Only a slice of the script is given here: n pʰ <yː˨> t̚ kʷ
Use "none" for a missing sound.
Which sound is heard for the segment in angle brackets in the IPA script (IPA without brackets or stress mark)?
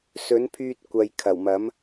yː˧